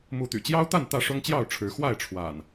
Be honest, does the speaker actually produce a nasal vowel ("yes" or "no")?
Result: no